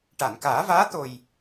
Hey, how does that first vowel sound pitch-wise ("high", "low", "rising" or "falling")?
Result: low